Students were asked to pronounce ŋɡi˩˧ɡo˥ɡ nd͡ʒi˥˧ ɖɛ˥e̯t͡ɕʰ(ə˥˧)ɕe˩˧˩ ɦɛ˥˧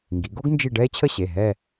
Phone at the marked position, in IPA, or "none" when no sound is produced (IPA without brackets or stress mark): ə˥˧